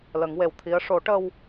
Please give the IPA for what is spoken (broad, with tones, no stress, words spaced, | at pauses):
lə˨˩˦ŋwe˨˩w t̪ʰi˧˥ə̯ ʂo˨˩˦ʈə˧w